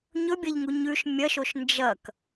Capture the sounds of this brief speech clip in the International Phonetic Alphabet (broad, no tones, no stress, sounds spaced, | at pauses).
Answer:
ɲ ɵ bʲ ɐ ʎ ŋ u ɲ ʉ ʃ mʲ ɐ ʃ o ʃ n d͡ʒ ɐ k